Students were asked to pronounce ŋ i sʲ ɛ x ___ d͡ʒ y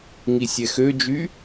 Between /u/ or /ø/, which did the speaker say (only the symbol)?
ø